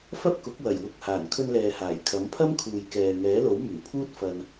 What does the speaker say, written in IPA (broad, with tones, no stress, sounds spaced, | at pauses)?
f ɐ˥ p̚ k ʊ˨˥ k̚ w ɐ˨˩ j w ʊ˨ k̚ h aː˨˩ n kʰ ɵ˧ n l ɛː˨ h aː˨˩ j kʰ ɐ˨˥ m pʰ ɐ˥ m kʰ uː˨ j k ɛː˨ ŋ ɛː˨˥ l o˨˥ w m yː˨˩ pʰ uː˥ t̚ f ɐ˧ n